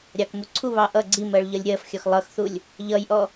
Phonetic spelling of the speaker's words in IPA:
ɾʲ ɑ k m u ǀʰ u β ɑ ʔ ʌ ɡ͡ǀ i m ɜ ɭ ʎ ʌ lʲ ɾʲ ɜ f xʲ ɒ x lˠ ʌ x θ u lʲ | ʎ ʌ j ʔ ɔ

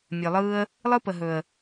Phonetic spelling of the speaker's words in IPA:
mʲ ɵ˨ lˠ ɯː˦ ə̯ | lˠ ɯ˦ p ə˨ ɦ ɵ˨ ə̯

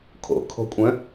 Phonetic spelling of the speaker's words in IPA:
kʰ o̰ kʰ o̤ kʷʼ œ̃

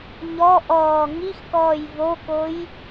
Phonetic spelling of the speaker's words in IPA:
ɲ ɔ ʔ ɔː ŋ i x k ɔː j v o k o j

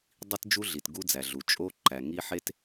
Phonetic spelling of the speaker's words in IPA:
dˤ i˦ t d͡ʒ u˦ ɮ i˨ t ɡ u˦ d͡z æ˨ ɮ u˨ t͡ʃʼ o˦ ǃ æ˨ ŋ i˦ ħ e˦ t

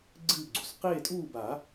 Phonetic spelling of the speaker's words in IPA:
ɡ͡ǀ ɨː˥˨ ɡ͡ǀ u˨ s q eː˥˨ tʼ uː˥˨ b a˨˩˦

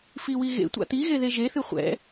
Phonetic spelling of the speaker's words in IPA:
f i w i ɣ ḛ tʷ a̰ t̪ i ɣ e ð e ʒ e θ ɨ χʷ ɛ̰

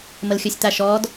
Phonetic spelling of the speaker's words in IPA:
m ə l xʲ ɵ sʲ t̪ a ʃ ɔː d

